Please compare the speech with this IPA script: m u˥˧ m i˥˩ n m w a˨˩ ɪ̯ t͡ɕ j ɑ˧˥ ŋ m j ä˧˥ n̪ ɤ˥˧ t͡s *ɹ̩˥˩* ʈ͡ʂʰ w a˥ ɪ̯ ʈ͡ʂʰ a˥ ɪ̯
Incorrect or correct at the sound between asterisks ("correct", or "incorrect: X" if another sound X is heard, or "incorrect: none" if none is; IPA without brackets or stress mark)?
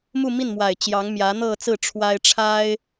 correct